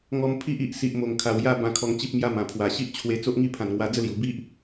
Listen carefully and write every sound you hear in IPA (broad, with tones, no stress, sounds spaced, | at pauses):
ŋ ɔ˧ m pʰ i˦ ʔ i˨ ʔ s i˨ ʔ m o˨˩ ŋ kʰ a˨˩ w j a˥˧ b ã˧ kʰ ɔ˧ ŋ t͡ɕ i˦ p̚ m j a˦ m ã˨˩ pʰ w a˨˩ ɕ i˦ ʔ t͡ɕʰ w e˧ t͡s o˦ ʔ ŋ i˥˧ pʰ ã˨˩ n ŋ w a˧ d͡z ə˦ l j u˨˩ b i˦ ʔ